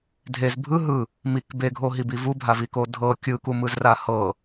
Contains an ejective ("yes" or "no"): no